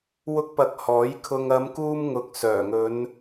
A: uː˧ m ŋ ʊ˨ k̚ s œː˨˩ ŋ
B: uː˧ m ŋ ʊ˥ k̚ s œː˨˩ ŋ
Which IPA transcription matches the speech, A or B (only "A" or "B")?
A